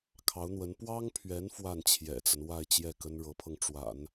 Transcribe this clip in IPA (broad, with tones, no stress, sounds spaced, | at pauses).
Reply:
kʰ ɑ˧˥ ʊ̯ n̪ w ə˧˥ n p w ɑ˥ ŋ pʰ ɥ ɛ˧˥ n f w a˥˩ n t͡ɕʰ j ɛ̰˨˩ t͡s ə˦ n w a˥˧ ɪ̯ t͡ɕ j ɛ˥˩ k ə˥ n ɻ ɤ˧˥ pʰ ɤ˧ ŋ ʈ͡ʂ w a̰˨˩˦ n